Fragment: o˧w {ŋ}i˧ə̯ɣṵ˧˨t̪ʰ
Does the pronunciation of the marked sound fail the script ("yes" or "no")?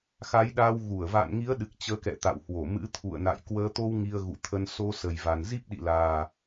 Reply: no